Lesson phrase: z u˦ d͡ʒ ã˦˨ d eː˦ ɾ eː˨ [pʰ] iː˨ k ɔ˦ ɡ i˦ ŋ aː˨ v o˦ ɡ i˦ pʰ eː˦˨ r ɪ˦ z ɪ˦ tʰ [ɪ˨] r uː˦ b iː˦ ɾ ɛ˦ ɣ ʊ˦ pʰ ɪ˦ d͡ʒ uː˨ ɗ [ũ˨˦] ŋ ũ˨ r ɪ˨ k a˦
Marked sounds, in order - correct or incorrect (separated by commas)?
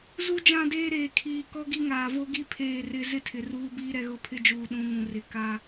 incorrect, correct, correct